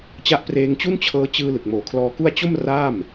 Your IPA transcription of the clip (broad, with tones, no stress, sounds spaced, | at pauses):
t͡ɕ a˦˥ ʔ p r eː˧ ŋ t͡ɕ u˥˩ n t͡ɕʰ ɤː˧ t͡ɕ ɯː˧ l ɯ˨˩ k̚ m oː˨˩ kʰ l ɔː˧ k u˥˩ a̯ t͡ɕ o˥˩ m r aː˥˩ m